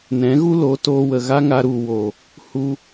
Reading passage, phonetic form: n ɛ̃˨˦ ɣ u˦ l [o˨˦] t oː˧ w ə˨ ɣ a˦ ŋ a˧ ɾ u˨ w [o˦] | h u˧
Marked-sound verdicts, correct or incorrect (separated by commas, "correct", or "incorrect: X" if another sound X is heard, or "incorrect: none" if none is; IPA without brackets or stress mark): correct, incorrect: o˨